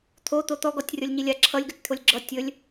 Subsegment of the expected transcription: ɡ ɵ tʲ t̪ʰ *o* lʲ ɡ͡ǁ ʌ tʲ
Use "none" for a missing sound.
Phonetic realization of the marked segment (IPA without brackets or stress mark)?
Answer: o